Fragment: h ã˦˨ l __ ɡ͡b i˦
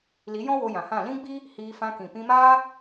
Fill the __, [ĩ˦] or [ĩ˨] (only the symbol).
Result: ĩ˦